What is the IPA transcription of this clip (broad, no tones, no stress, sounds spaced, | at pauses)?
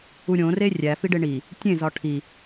u ɾʲ õ r e rʲ æ f i ɖ e ɳ i | tʲ ẽ z ɒ ʈʰ i